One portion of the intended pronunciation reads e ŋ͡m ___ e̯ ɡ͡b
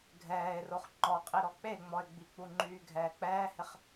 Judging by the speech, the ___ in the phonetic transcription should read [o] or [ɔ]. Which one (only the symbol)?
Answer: ɔ